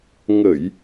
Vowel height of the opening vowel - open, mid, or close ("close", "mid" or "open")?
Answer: mid